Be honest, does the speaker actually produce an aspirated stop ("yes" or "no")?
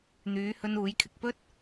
yes